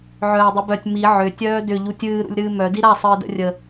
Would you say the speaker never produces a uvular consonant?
yes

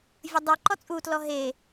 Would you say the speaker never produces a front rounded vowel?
yes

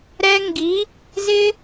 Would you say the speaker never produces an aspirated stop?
yes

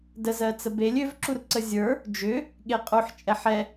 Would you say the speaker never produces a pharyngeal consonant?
no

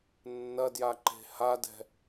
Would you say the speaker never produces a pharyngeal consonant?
yes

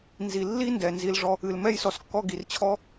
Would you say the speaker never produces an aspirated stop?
no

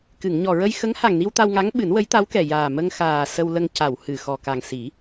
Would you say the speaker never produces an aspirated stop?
yes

